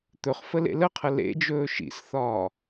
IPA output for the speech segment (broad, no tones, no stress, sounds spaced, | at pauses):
t̪ ɵ χ f ə l ḛ l ə qʰ ə l ḛ d͡ʒ ɵː ʃ ḭ s θ ɒː